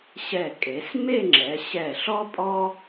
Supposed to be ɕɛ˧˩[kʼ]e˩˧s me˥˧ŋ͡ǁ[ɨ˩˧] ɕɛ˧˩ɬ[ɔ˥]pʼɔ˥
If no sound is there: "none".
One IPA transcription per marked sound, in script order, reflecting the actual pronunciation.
kʼ, ɛ˩˧, ɔ˥

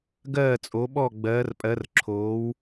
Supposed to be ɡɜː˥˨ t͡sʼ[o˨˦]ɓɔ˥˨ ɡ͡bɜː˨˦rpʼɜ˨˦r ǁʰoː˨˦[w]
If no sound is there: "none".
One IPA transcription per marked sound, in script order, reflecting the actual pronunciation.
o˨˦, w

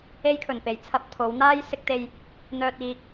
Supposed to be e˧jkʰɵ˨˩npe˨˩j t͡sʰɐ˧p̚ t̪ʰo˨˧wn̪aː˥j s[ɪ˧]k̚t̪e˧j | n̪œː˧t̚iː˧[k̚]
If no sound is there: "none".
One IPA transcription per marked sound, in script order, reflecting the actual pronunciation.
ɪ˧, k̚

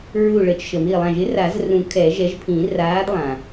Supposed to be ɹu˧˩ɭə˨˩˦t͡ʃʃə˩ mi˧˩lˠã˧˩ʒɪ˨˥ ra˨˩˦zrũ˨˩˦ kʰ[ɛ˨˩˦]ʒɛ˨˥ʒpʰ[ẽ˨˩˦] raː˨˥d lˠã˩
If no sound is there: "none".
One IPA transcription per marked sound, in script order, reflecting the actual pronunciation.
ɛ˨˩˦, ĩ˨˩˦

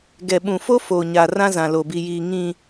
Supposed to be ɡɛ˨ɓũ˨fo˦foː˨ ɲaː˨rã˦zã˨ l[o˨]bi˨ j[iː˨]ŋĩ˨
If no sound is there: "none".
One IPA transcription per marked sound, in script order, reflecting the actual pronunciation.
o˨, iː˨

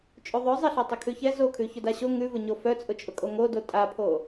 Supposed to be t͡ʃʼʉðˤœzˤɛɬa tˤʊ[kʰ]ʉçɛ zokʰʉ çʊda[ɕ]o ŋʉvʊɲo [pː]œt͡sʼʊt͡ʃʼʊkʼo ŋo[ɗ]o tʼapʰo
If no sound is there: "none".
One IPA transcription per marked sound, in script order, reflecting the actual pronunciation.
kʰ, ɕ, f, d

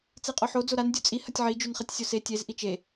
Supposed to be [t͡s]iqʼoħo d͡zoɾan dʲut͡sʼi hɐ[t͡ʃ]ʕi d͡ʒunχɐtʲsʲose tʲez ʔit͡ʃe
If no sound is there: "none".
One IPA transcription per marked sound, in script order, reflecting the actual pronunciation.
t͡s, tʲ

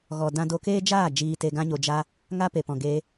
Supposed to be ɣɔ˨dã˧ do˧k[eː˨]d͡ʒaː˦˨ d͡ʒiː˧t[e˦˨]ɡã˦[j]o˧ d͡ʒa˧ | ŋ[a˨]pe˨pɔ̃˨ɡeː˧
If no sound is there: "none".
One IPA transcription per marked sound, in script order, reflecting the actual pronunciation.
eː˦, e˧, ɲ, a˦

